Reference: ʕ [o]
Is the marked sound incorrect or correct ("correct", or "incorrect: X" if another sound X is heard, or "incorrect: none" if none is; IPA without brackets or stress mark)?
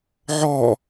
incorrect: ɔ